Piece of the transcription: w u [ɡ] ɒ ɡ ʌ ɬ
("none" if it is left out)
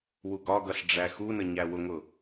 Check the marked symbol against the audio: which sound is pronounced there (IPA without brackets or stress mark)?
ɡ